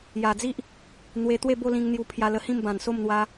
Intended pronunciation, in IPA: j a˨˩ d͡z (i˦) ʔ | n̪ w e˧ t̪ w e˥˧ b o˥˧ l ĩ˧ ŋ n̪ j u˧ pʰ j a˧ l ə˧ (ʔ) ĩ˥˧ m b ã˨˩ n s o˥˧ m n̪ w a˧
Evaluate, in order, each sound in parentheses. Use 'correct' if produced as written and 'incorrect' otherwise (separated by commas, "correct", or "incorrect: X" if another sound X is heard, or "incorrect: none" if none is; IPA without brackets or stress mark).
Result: correct, incorrect: h